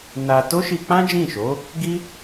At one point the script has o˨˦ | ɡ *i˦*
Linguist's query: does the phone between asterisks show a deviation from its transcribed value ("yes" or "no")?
no